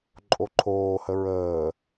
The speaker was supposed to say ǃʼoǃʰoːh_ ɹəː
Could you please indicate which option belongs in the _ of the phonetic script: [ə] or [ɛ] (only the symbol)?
ə